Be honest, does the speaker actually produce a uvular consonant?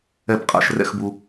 yes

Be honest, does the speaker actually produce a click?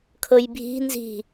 no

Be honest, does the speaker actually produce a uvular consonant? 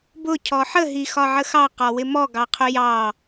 yes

